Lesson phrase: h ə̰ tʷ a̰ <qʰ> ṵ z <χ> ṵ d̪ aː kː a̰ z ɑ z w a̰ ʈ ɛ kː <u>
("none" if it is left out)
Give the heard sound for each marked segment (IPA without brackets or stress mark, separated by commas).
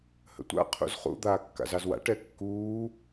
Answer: qʰ, χ, uː